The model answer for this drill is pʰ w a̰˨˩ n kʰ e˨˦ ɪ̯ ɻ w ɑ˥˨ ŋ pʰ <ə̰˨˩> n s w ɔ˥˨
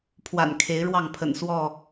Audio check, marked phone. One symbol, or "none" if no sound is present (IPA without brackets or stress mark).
ə̰˨˩